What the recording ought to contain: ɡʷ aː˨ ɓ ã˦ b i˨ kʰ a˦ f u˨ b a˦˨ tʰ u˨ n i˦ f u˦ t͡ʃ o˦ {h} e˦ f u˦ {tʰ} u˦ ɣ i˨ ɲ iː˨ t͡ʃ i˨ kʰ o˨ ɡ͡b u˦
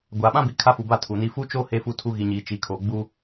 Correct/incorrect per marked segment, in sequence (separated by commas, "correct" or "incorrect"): correct, correct